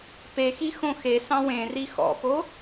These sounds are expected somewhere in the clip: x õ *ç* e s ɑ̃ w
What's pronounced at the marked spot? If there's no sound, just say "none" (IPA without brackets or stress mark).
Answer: x